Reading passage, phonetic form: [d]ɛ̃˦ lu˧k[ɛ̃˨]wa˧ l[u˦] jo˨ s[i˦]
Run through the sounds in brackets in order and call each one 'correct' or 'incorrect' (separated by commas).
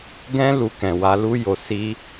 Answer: incorrect, correct, incorrect, incorrect